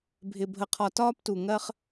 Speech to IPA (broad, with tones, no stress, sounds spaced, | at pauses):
bʱ ɪ˨ bʱ ə˨ qʰ ɒ˨ t ɒː˦ p t u˨ ŋ ɜ˦ χ